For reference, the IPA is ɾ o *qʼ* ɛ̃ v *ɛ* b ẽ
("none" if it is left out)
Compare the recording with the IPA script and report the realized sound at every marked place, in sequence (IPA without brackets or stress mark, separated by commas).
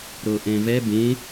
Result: ʔ, ɛ